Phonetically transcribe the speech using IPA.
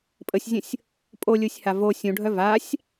pʼ ə sʲ zʲ ə̃ sʲ | pʼ o lʲ ɯ sʲ h a v o sʲ ũ ɖʱ œ v a sʲ

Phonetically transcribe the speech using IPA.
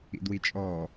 ḭ d w i t͡ʃʼ ɔ

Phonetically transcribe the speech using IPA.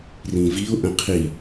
r ĩ v i ʊ̯ ʔ ə̃ qʰ i

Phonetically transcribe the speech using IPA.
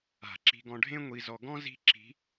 a̤˨˩˦ ǁ i̤˧ ɡ ɔ̃˧ ɖʱ ẽ˥ ŋʷ i˧ z ɔ˧ ɡ ɔ̃˥ z i̤˥ ǁ i̤˧˥

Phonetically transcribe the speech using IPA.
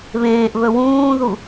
β ẽː ʔ β ɵ w ũː ð u

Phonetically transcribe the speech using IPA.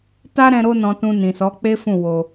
t a˦ ɾ ɛ̃˧ ɾ o˧ n ɔ̃˨ t ũ˨ n ĩ˨ s ɔ˨˦ k͡p e˦ f ũ˦˨ w o˧

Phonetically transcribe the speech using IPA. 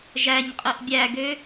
ʒ æ ɲ qʼ ɯ ʔ bʲ æ ɡ ø

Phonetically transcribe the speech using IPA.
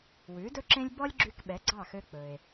w ʉ˩˥ d ɵ˥ ǁ ẽ˥ lʲ b ɔ˥ lʲ ɡ͡ǁ y˧ k ɓ ɛ˩˥ ɡ͡ǀ ɑ˥˩ x ø˧ k͡p ɵ˩ e̯

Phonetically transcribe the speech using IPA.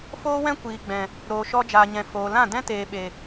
f oː˦ w ɛ̃˦ kʷ iː˨ ɡ͡b ɛ̃˨ | ɾ oː˨ ʃ ɔ˧ d͡ʒ aː˨ ɲ ɛ̃˨ f oː˨ l ã˦˨ d ɛ̃˦ t eː˨ ɓ e˨

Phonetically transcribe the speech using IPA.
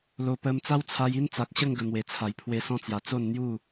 l o˨˩ p ə˧ m t͡s a˦ w t͡sʰ a˧ j i˦ n t͡s a˨ k̚ ɕ ə˥˧ ŋ ɡ ə˨˩ n̪ w e˨˩ t͡sʰ a˨˩ j pʰ w e˧ s ɔ̃˦ t͡s j a˨˩ t͡s o˥˧ n n̪ j u˥˧

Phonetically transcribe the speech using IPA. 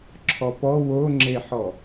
ǁʰ ɔ p ɔ w o ŋ͡ǁ e ħ ɔ

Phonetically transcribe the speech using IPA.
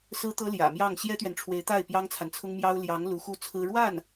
s ɹ̩˥ t̪ ɤ˥ l j ä̰˨˩ m j ɑ˥˩ ŋ ɕ j ɛ˥ t̪ ɥ ɛ˨ n ʈ͡ʂʰ w e˧˥ ɪ̯ t̪ a˥˩ ɪ̯ p j ɑ˥ ŋ t͡sʰ a˨ n t͡sʰ ʊ˥ ŋ m j ɑ˥ ʊ̯ l j ɑ˧˥ ŋ l u˧˥ x u˥˩ t͡sʰ ɹ̩˥ ɻ w a˥˩ n

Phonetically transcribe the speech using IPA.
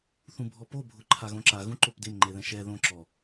θ ũ bʱ ɔ p o bʱ ʊ ǃʰ a ɣ õ ǁ a ɣ ũ ǃ o p d ɪ m ŋ͡ǃ e ð ɛ̃ ʃ ɛ ð õ ǁ ɔ

